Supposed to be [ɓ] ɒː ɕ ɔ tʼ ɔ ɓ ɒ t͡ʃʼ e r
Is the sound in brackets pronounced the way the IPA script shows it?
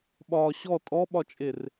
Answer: yes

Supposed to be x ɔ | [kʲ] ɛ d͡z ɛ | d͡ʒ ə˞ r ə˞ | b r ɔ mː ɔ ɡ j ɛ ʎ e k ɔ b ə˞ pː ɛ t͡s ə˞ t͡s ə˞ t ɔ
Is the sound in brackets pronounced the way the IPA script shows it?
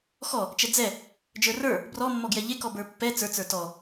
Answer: no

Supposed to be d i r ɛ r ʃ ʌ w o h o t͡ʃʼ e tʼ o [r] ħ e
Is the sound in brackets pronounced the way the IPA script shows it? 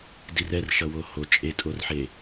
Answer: yes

